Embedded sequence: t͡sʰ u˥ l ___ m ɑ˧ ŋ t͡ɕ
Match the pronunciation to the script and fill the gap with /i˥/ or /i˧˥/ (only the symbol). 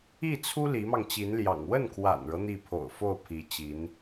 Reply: i˧˥